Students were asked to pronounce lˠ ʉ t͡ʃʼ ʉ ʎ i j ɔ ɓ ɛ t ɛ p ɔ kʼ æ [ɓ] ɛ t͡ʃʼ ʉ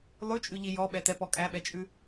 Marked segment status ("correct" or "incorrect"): correct